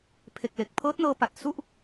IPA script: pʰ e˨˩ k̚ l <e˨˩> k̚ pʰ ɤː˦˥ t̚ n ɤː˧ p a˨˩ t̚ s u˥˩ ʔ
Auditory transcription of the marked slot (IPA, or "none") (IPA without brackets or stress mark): e˨˩